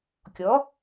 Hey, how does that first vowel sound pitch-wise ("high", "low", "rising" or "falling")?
rising